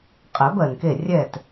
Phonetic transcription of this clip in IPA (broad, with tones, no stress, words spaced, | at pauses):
qʼɛ˨˩˦bɜ˩nke˧˩ rʲɛ˧˩t